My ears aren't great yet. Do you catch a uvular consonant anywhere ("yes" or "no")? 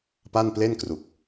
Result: no